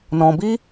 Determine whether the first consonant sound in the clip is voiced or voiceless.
voiced